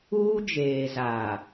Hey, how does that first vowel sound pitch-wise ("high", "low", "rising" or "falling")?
high